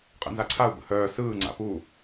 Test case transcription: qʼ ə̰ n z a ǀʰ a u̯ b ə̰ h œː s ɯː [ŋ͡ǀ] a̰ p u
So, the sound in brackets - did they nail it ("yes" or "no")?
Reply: yes